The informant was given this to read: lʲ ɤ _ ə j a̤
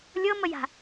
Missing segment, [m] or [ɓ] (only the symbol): m